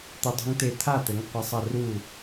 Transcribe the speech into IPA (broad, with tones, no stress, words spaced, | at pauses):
t̪ɘ˦˥dˤṳ˦˥ŋt̪e˥˨ t̪ʰa˥˨t̪ɘ˨˥ŋ qʷa˦˥sˤɐ˥˨ ru˥˨